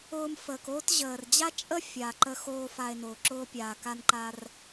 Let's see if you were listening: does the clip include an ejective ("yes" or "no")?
yes